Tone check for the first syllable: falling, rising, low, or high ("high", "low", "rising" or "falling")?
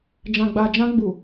low